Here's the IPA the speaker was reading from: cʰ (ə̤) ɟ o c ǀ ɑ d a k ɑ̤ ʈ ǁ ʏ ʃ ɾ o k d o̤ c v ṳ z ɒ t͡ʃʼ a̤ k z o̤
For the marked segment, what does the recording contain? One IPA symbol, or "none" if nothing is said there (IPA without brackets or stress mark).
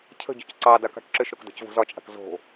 ə̤